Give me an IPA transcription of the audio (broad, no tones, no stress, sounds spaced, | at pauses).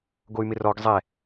ɡ o y̯ m ɪ r ɔ ɡ zˤ ɛ